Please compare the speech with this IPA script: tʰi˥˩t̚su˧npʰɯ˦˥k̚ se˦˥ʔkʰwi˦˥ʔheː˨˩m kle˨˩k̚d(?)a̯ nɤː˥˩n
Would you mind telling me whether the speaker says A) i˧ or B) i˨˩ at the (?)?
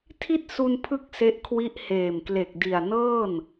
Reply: B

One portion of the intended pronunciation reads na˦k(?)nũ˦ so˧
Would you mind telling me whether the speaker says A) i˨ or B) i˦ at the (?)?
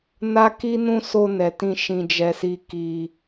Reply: B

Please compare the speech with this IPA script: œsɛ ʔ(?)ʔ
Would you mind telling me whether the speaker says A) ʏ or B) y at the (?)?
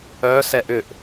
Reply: A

